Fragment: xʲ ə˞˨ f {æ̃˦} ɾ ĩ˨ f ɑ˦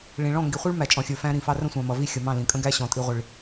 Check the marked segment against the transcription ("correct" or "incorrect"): correct